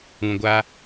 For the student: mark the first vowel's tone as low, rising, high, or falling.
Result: low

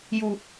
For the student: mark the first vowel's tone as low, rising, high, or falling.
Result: low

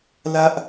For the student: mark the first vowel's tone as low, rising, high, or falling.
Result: high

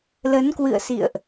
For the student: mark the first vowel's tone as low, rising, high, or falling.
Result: rising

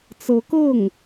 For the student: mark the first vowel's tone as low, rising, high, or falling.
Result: rising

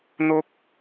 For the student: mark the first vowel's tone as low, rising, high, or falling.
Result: high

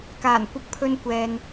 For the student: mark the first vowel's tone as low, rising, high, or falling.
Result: low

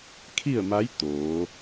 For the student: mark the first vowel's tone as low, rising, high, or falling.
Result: falling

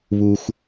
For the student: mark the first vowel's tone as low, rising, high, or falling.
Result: low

